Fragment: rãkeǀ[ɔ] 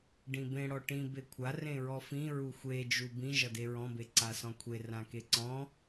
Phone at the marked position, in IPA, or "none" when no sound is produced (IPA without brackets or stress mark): ɔ̃